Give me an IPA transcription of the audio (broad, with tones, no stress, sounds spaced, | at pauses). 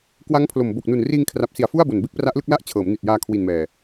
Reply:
k w a˦˥ ŋ pʰ l o˨˩ m b o˨˩ k̚ n u˨˩ n r iː˧ ŋ kʰ r a˨˩ p̚ s i˨˩ a̯ f u˥˩ a̯ b o˨˩ n b e˥˩ k̚ p r a˦˥ ʔ l ɯ˥˩ k̚ l a˥˩ ʔ t͡ɕʰ ɤː˩˦ m n i˨˩ t̚ j aː˧ kʰ w i˨˩ n m ɛː˨˩